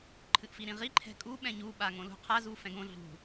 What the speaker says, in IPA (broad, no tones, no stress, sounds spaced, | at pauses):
ǃʰ ɨ ʔ f i ɾ ĩ ʁ i ǃʰ ɛ̤ kʼ u ɓ ɛ̃ ɲ u ɓ a ŋ õ l ṳ qʰ a z u f ɛ̃ ɡ õ ɮ ṳ